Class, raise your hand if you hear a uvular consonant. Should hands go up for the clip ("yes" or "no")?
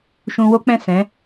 no